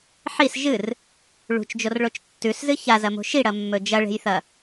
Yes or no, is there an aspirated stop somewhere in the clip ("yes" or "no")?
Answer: no